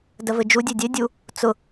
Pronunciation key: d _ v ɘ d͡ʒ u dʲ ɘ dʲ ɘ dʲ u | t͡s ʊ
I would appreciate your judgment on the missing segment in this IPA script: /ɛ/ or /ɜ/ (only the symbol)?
ɜ